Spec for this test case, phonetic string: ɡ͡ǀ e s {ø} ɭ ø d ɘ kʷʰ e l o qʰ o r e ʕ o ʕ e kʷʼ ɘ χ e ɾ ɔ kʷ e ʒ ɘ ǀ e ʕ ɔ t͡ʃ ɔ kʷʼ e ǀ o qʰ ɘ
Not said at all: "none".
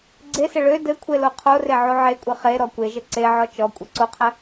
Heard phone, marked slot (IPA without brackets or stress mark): ɘ